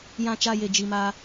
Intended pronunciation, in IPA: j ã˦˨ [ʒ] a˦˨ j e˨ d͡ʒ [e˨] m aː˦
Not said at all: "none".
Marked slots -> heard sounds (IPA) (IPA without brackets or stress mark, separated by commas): t͡ʃ, i˨